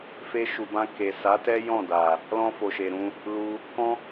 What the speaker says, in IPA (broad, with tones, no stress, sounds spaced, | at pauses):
f e˧ ʃ u˨ b ã˧ k e˨ s a˨˦ t ɛ˦ j ɔ̃˦˨ d a˨ | l ɔ̃˧ f o˨ ʃ e˨ ɾ ũ˧ | l u˧ | k ɔ̃˦